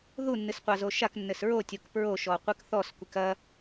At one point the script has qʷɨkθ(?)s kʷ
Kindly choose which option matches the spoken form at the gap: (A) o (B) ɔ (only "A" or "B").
B